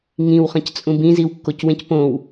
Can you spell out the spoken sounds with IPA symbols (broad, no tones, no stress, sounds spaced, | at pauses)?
ŋ ĩ w χ ɐ̃ c t͡sʼ ũ b ĩ z i w kː o c w ẽ c p õ w